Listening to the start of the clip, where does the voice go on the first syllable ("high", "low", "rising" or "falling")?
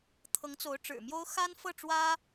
rising